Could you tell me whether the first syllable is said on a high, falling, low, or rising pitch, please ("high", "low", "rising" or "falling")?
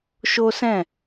high